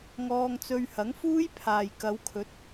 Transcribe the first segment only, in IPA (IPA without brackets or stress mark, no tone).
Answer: ŋ